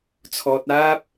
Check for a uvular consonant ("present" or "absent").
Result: absent